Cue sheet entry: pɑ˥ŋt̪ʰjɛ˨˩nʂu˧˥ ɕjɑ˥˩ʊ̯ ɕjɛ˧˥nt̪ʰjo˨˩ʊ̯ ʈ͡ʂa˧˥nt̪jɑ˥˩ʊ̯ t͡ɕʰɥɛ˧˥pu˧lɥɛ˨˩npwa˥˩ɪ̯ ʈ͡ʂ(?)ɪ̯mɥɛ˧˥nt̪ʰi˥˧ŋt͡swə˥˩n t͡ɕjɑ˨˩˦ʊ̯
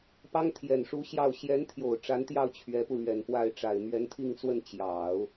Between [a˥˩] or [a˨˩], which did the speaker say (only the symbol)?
a˨˩